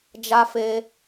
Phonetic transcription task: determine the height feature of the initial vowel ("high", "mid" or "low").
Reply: low